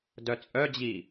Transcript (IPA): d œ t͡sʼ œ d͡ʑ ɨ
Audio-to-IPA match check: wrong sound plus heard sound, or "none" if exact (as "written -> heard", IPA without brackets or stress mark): ɨ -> i